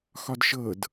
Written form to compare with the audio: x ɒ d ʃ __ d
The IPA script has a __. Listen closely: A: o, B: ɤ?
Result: B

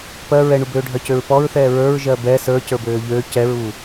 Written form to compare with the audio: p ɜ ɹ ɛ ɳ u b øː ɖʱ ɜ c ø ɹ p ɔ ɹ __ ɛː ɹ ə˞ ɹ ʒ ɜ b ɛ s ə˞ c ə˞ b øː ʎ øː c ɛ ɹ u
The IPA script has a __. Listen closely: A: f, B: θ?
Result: B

